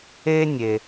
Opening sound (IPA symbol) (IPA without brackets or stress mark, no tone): e